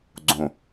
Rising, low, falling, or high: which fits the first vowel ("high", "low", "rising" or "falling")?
low